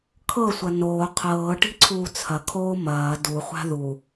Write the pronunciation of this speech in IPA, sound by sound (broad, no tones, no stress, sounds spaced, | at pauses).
kʰ ɤ sʷ ɐ n oː qʰ ɤː ʈ i̤ ǀʰ uː t͡sʰ ɐ kʰ oː m ɐː d u χʷ a̤ ð u